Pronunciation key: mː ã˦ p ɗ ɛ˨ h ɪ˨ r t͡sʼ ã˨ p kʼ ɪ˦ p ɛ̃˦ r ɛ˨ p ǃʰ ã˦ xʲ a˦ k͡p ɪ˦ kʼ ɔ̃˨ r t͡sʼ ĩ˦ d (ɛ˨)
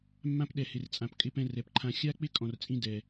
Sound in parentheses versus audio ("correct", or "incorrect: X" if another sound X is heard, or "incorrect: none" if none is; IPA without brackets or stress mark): correct